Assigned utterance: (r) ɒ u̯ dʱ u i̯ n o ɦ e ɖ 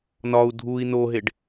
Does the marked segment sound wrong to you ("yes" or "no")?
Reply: yes